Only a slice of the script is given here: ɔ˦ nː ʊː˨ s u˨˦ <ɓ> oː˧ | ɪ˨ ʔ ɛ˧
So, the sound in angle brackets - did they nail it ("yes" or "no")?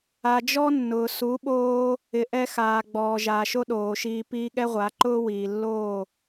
yes